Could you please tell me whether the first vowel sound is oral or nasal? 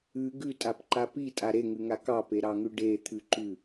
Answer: oral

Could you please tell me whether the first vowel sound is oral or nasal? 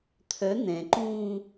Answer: oral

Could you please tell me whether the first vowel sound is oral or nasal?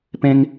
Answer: nasal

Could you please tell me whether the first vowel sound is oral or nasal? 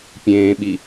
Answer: nasal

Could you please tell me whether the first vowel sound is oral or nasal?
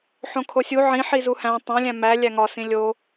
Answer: nasal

